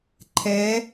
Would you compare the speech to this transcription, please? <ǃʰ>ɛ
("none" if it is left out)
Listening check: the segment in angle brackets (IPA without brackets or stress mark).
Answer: ǃʰ